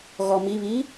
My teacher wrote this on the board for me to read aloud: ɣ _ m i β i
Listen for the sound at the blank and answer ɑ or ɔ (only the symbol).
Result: ɔ